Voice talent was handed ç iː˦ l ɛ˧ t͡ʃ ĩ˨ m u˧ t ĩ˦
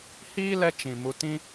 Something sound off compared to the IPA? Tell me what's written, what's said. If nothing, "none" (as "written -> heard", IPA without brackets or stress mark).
ç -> h